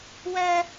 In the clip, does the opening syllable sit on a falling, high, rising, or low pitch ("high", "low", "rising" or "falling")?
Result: high